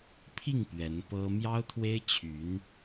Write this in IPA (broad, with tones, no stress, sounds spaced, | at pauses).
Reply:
pʰ i˥˩ ŋ p ɥ ɛ˧˥ n p ɤ˥ m j ɑ˥ ʊ̯ t̪ʰ w e˥ ɪ̯ t͡ɕʰ y˧˥ n